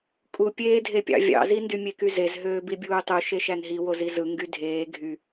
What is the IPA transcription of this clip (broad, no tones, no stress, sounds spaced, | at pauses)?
kʼ u pʲ eː dʱ e pʲ ɑ̰ vʲ ɑ̰ z i n d y mʲ e k y z e z ɦ øː b i bʲ uː tˤ u ʃ e ʃ æ n ɦ i w o z i z ɯ ŋ ɡ y dʱ eː ɡʱ y